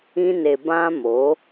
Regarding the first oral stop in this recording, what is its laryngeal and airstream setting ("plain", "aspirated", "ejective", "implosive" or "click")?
plain